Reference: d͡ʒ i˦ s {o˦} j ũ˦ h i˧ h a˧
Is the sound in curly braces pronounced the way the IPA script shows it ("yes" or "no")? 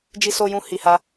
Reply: yes